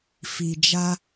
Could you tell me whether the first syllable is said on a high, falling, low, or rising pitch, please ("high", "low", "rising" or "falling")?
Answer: low